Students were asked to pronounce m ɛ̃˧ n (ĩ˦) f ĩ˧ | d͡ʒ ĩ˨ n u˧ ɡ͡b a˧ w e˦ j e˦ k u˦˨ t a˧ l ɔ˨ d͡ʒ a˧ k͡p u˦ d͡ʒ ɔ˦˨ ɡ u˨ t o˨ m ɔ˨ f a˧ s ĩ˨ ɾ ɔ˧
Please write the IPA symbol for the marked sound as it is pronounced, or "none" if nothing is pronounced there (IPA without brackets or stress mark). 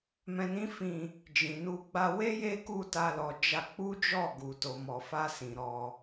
ĩ˦